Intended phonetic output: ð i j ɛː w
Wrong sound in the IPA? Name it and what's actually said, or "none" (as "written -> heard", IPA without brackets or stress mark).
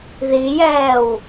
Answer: none